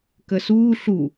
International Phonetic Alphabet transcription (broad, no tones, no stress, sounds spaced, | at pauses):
k ə s uː ɬ u